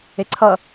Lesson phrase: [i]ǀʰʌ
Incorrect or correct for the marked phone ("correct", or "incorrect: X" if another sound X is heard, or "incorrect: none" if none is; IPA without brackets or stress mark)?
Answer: incorrect: e